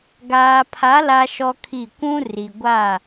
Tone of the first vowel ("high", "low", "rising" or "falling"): low